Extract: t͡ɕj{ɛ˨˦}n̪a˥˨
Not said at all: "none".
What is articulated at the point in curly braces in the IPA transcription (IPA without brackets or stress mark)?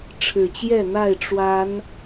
ɛ˥˨